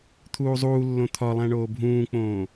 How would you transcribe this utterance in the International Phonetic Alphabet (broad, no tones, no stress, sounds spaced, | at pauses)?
t̪ʰ uː zˤ uː lː õ t̪ʰ ɒ lˠ æ̃ ɳ oː bʱ ũː k͡p õː